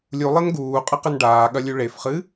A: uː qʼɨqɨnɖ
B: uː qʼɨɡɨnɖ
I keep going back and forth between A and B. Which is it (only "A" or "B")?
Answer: A